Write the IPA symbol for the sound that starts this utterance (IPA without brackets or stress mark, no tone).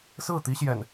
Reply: s